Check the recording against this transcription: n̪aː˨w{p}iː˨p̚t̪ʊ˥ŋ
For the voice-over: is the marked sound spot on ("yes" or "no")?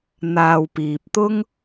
yes